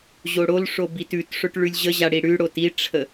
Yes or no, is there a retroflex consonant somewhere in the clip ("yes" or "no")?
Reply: yes